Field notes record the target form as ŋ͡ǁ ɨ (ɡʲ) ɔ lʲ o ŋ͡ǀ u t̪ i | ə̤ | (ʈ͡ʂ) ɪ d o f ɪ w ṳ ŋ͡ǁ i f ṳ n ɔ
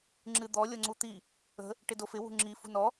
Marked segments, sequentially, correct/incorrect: incorrect: d̪, incorrect: ʈ

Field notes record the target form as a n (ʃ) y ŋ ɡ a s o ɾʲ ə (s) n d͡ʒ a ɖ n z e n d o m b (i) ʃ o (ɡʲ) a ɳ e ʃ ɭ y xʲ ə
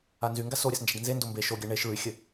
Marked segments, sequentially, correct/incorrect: incorrect: z, correct, incorrect: e, correct

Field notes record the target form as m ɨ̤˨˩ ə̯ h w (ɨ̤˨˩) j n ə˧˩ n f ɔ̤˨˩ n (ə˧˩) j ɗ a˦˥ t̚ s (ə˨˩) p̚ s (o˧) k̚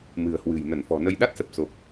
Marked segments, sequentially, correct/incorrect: correct, incorrect: ə˧, correct, incorrect: o˨˩

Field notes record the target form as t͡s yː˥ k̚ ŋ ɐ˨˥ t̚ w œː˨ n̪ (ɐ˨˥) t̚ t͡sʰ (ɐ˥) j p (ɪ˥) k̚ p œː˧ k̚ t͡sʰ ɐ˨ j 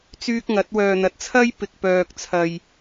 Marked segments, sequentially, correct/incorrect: correct, correct, incorrect: ɪ˨

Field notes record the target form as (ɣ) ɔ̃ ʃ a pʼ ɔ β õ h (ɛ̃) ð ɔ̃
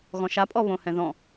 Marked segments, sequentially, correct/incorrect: correct, correct

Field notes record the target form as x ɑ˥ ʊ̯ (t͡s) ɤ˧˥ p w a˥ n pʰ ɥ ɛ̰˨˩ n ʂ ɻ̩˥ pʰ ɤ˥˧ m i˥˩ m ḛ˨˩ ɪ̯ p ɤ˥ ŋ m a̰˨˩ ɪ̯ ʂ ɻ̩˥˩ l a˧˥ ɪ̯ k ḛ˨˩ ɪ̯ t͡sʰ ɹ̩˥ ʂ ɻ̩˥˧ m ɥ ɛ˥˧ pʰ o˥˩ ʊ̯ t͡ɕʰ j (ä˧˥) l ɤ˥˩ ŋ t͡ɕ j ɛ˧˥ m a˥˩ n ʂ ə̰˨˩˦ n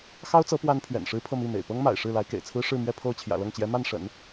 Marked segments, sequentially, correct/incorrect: correct, incorrect: ä̰˨˩

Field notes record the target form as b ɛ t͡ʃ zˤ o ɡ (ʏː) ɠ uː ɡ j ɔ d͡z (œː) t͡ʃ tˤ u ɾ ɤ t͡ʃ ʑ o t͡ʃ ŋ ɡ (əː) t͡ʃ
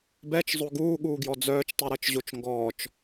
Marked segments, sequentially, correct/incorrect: incorrect: uː, correct, incorrect: ɔː

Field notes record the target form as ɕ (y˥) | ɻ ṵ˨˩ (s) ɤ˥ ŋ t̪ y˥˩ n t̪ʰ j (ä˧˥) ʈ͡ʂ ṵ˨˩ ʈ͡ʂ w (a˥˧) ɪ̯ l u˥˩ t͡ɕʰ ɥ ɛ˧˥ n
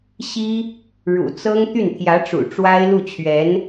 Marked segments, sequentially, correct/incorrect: incorrect: i˥, incorrect: t͡s, correct, incorrect: a˥

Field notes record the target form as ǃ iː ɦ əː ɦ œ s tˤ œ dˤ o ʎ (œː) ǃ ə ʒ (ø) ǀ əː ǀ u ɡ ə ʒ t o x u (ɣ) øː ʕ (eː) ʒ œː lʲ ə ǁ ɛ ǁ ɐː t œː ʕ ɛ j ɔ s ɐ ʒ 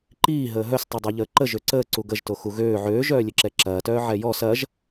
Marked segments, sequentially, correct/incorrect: incorrect: əː, correct, correct, incorrect: øː

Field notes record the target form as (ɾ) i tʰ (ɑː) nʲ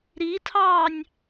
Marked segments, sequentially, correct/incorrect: correct, correct

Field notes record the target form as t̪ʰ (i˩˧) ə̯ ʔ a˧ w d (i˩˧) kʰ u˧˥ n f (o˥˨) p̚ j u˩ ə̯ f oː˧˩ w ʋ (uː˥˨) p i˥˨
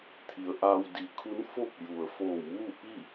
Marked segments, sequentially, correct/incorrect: correct, correct, correct, correct

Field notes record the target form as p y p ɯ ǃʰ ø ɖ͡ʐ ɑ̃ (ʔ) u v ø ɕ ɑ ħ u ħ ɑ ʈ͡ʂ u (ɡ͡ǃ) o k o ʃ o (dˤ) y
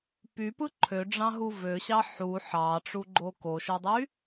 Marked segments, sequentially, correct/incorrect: incorrect: ɦ, correct, correct

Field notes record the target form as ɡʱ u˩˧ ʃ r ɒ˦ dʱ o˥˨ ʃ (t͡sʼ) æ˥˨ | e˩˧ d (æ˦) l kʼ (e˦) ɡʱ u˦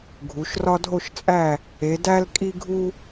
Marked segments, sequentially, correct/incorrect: correct, correct, incorrect: i˦

